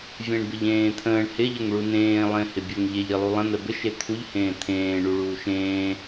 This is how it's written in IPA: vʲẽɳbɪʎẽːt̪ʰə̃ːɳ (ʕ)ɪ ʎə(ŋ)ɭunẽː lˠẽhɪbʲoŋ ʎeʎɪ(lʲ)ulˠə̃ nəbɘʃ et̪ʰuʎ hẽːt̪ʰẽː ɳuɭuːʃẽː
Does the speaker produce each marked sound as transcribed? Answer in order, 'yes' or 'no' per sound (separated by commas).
no, yes, no